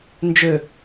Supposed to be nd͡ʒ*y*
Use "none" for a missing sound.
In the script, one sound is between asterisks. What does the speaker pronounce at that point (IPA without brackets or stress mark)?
ø